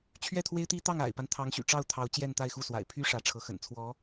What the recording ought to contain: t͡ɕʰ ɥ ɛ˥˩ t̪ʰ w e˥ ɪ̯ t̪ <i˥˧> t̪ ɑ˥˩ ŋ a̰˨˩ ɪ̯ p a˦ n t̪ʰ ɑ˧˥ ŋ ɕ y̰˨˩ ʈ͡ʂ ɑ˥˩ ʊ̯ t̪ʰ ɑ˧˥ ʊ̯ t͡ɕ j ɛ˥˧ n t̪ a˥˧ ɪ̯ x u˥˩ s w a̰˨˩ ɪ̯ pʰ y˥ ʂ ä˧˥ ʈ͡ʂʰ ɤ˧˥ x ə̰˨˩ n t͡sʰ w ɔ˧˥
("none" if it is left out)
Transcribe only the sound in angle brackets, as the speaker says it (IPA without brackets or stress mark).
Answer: i˥